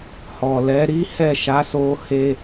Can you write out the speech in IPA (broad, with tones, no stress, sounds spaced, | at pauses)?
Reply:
h ɔ˨ l ɛ˨˦ ɾ i˦ h ɛ˦˨ ʃ a˨˦ s o˧ h e˧